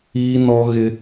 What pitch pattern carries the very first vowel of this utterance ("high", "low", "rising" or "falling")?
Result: high